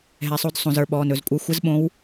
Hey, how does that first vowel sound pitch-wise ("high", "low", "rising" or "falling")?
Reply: low